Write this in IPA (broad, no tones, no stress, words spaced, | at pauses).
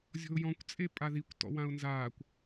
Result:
zʲɔ̤ʊ̯jɔ̃kʷ t͡sʼepʼaðikʷtɔ̰ wãʊ̯nzaːkʷ